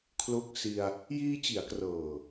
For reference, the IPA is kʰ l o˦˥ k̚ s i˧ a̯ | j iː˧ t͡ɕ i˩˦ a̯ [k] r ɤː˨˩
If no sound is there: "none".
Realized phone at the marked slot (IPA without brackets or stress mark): k